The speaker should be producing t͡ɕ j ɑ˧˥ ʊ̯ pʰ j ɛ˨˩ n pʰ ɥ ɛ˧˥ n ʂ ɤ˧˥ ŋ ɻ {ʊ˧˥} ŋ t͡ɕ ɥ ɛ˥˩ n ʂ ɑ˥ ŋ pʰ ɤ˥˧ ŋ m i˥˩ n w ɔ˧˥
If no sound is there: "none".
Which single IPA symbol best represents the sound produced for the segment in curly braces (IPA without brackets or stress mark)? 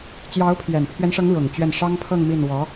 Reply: ʊ˨˩